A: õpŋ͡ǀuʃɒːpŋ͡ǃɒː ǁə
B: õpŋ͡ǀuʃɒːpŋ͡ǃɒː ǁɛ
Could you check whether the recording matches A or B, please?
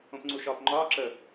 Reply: A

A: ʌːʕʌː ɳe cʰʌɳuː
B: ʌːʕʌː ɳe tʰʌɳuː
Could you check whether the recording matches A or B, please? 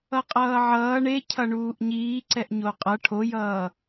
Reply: A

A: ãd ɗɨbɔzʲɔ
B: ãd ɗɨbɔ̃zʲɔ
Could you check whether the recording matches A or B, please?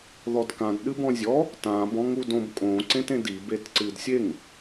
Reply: B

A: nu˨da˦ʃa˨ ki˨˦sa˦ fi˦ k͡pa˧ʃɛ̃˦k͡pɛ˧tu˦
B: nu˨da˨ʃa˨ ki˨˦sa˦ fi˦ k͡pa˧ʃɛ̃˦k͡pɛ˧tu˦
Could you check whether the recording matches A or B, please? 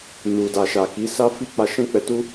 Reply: B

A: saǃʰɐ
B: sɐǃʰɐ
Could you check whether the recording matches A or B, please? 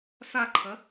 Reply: A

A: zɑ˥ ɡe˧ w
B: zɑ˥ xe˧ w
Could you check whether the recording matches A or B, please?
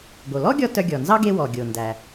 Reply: A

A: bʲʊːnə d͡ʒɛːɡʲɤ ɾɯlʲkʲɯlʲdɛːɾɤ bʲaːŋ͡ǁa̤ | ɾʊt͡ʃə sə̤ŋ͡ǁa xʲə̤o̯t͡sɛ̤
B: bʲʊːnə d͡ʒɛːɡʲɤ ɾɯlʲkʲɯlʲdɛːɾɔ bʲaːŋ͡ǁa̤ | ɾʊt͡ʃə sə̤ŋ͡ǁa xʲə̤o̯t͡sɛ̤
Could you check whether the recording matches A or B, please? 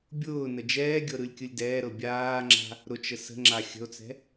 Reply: A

